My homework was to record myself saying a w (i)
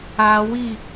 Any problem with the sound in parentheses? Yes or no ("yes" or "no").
no